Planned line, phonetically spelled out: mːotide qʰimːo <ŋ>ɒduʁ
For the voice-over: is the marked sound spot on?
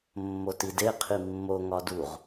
yes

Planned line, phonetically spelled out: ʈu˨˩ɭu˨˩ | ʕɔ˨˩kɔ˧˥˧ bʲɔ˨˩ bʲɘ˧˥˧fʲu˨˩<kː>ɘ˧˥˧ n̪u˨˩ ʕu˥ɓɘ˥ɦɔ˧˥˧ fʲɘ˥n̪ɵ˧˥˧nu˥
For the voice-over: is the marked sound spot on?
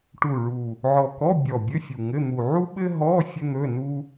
no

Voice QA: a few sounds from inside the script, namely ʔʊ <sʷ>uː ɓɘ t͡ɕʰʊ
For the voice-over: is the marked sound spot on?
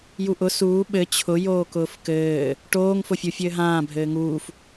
no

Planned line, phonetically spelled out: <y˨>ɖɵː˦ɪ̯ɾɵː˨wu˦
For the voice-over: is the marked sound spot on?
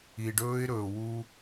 no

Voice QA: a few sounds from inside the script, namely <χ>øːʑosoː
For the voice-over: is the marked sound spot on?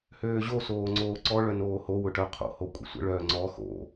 no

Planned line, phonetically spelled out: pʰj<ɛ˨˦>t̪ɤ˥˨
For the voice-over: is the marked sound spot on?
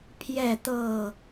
no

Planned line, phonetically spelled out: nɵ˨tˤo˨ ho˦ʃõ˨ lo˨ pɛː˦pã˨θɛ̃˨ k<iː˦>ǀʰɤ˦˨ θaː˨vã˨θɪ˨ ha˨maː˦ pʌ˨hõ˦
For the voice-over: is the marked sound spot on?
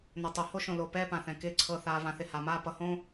no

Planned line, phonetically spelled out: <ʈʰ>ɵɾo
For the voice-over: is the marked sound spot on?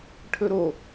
yes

